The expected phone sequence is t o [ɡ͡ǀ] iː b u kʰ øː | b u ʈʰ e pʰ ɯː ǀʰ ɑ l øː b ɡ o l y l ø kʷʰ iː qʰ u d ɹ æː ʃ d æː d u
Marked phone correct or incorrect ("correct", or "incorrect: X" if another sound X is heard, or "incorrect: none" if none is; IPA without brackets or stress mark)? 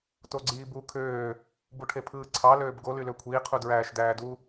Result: correct